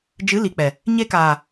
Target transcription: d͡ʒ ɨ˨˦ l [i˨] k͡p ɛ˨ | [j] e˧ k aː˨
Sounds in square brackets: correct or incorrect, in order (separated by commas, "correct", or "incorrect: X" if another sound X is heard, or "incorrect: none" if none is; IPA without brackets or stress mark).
correct, incorrect: ɲ